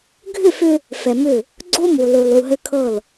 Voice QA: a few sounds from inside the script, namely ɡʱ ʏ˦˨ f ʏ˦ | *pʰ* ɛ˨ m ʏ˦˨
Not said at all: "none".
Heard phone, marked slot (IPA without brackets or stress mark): f